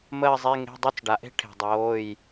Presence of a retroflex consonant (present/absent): present